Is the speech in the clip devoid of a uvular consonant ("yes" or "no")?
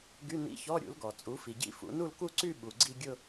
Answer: yes